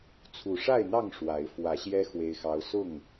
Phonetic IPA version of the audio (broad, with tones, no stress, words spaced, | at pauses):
t͡sʰu˨˩ʂa˥˨ɪ̯n̪ɑ˥˨ŋ ʂwa˨˦ɪ̯ fwä˨˦ɕjɛ˦ xwe˦ɪ̯xɑ˦ʊ̯ sʊ˥˨ŋ